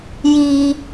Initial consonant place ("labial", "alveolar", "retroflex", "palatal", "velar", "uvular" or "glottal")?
palatal